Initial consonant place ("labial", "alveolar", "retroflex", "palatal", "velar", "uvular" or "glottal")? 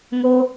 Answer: velar